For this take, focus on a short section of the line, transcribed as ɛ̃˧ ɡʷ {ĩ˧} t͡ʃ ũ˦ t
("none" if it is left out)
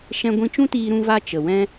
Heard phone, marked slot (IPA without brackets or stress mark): ĩ˧